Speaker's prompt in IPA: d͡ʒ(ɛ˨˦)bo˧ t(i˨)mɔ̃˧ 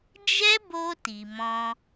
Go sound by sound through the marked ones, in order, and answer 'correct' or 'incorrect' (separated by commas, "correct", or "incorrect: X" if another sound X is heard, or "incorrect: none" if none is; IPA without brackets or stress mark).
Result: incorrect: ɛ˦, correct